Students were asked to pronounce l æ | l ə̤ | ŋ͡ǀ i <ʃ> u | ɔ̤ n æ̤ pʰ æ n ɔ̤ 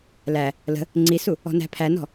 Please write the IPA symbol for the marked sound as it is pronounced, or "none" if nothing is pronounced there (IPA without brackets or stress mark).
s